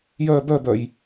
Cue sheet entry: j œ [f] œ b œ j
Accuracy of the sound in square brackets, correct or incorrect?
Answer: incorrect